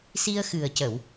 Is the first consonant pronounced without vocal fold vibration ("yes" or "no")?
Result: yes